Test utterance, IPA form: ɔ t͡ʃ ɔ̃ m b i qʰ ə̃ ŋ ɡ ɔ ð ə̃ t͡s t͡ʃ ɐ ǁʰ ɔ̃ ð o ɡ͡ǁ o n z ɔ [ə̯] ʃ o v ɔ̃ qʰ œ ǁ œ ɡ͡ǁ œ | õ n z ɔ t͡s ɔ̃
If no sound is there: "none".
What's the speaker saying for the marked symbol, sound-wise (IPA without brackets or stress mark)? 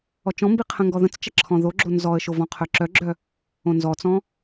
ə̯